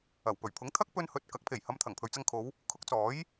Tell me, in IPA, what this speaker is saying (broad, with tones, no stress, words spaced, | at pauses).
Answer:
ɐ˨˩wpɵ˨˩ɥpʰʊ˨˥ŋt̪ʰɐ˥k̚ pɵ˧nhɵ˨t̚kɐ˨˥k̚ pʰe˨˩jhɐ˨˧mt̪ʰɐ˨˩ŋ pʰɵ˨ɥt͡sɐ˧ŋkʰo˨˧w | kʰʊ˨˥k̚t͡sɔː˨˥j